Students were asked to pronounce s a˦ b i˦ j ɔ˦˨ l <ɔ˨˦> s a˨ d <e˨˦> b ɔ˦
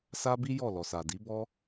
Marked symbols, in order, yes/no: no, no

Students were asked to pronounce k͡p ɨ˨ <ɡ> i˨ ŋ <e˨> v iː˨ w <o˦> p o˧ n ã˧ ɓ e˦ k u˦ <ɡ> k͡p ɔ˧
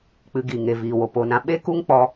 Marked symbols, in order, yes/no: yes, yes, no, no

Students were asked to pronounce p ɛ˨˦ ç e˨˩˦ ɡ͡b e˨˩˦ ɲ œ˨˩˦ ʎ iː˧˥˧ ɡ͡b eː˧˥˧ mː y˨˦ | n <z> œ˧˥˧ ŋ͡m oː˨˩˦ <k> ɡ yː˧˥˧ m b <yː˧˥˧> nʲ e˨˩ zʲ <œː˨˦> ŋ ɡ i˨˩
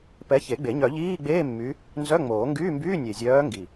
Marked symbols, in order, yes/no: yes, no, yes, yes

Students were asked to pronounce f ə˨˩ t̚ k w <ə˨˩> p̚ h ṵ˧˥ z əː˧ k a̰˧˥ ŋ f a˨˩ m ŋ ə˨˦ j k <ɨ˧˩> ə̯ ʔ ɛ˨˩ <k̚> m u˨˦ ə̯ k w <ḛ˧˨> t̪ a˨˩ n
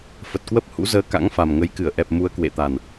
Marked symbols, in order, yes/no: no, yes, no, yes

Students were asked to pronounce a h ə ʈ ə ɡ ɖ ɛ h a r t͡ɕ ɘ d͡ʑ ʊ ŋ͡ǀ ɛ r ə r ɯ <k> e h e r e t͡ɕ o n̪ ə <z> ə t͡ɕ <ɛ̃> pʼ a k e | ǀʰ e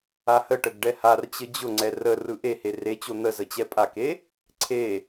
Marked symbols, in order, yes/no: no, yes, no

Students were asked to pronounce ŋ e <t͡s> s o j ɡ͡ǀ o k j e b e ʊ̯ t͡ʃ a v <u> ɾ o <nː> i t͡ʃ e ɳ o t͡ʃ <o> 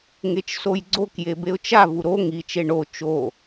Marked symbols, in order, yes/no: no, yes, no, yes

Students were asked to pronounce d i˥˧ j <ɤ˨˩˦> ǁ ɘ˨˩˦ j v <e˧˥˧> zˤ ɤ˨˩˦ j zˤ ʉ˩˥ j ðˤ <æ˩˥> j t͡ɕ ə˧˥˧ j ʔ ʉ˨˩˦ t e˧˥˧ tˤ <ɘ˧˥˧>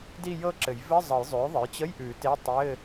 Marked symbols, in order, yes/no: no, no, no, yes

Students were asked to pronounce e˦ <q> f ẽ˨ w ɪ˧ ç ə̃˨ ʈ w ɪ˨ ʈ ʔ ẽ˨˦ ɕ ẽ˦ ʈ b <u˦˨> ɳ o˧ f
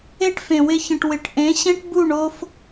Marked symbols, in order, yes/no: no, yes

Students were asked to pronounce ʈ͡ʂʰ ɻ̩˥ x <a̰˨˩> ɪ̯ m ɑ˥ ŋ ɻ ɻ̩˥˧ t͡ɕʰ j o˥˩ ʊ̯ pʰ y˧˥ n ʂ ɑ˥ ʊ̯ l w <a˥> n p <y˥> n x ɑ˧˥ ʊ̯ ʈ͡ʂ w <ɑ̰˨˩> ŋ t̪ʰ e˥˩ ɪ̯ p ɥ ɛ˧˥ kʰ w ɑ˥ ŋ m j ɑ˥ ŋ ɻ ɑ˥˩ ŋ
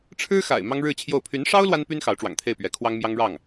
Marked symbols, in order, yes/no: yes, yes, yes, yes

